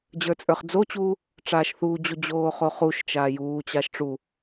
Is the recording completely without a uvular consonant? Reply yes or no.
no